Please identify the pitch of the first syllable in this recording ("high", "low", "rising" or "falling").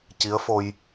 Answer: rising